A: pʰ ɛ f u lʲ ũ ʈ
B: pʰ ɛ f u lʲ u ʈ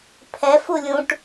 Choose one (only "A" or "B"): A